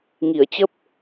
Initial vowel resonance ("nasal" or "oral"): oral